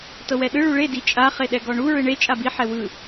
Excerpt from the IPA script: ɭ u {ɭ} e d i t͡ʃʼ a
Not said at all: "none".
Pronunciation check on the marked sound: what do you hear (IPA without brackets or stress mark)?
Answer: ɭ